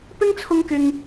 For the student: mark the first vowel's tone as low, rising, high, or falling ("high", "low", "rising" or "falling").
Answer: high